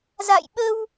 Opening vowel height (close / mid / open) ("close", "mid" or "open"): open